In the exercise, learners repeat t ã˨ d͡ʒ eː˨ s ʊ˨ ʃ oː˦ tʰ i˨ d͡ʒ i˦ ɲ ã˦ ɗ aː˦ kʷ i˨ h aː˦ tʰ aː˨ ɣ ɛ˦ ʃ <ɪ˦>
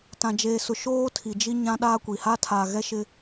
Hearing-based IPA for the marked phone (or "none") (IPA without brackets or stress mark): ɪ˦